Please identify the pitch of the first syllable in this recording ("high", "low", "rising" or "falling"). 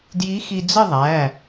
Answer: rising